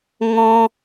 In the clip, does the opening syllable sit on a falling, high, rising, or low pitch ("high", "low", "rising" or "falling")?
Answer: high